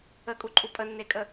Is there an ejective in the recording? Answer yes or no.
yes